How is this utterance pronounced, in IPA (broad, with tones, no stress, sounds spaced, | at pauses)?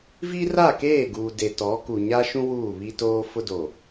v i˦ r a˦˨ k eː˦˨ ɡ uː˨ d e˨ t ɔ˨˦ k u˨ ɲ a˦ ʃ ũ˦ w uː˦˨ β i˦ t oː˦ f ʊ˦ d o˨